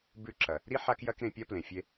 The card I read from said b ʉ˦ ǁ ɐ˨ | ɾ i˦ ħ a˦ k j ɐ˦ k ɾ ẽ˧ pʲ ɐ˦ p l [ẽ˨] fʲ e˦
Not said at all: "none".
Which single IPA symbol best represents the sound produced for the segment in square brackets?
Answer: ẽ˨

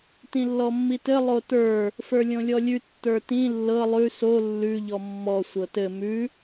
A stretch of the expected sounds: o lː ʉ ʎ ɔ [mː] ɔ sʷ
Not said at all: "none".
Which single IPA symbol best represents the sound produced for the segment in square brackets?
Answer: mː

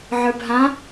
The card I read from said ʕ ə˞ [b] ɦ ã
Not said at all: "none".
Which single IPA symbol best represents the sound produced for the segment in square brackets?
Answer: b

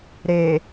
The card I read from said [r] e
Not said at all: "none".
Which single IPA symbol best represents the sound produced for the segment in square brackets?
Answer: ɾ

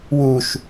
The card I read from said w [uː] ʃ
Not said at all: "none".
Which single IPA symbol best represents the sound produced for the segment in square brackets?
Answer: uː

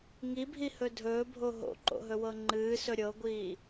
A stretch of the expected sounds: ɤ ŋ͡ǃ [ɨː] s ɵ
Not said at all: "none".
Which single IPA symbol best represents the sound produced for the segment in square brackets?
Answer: ɨː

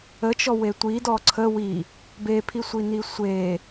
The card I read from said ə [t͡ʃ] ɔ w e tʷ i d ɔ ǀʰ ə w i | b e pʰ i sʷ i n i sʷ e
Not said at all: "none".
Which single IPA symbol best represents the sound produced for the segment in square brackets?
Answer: t͡ʃ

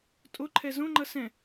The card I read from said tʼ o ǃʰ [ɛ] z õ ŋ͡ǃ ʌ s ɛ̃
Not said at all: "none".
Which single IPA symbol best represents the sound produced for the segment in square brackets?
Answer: ɛ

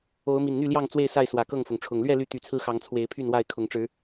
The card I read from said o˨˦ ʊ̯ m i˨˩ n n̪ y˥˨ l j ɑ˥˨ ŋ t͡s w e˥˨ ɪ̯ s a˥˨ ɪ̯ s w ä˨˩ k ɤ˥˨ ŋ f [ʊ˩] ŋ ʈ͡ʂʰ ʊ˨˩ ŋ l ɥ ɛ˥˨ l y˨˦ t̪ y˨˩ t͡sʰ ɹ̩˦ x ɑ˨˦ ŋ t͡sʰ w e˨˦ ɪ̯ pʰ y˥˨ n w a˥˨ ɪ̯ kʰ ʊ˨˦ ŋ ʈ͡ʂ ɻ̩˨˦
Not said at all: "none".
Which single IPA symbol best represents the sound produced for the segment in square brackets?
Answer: ʊ˩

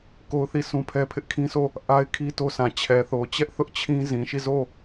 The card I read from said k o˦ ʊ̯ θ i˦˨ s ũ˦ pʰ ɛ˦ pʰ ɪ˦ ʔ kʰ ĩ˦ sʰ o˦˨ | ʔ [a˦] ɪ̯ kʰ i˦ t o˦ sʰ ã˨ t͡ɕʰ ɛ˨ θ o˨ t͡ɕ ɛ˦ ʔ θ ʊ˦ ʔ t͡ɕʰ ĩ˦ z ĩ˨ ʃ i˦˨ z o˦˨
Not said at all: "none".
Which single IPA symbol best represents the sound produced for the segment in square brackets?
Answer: a˦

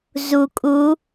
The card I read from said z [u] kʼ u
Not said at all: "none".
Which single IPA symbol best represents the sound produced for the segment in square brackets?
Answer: u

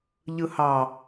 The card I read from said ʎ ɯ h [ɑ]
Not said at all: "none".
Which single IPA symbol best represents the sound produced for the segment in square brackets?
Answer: ɑ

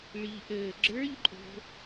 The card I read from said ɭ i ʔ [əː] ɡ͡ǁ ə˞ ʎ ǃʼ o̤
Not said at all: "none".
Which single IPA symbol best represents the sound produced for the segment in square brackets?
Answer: əː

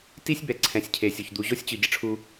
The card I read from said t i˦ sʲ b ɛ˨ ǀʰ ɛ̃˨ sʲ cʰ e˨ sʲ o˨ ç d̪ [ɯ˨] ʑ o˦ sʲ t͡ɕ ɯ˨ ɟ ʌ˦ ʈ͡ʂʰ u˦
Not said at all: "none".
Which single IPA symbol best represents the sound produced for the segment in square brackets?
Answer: u˨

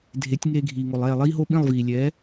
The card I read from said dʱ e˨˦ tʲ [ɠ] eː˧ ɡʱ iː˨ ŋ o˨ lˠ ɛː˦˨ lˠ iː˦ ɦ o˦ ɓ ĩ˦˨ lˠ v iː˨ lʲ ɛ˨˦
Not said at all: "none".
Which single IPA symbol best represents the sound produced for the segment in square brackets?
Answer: ŋ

